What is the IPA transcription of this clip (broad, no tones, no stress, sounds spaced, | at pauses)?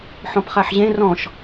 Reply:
ħ ɔ̃ p χ a ħ ʑ ẽ r ɔ̃ ʃ